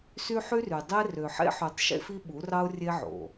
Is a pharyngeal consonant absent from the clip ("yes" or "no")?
no